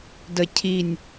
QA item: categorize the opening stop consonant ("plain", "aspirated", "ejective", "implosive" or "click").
plain